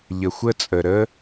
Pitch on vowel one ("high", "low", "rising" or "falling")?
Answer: low